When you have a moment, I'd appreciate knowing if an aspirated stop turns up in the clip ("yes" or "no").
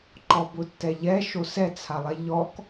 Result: yes